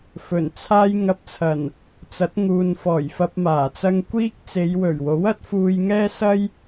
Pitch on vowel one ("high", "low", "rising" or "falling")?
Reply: low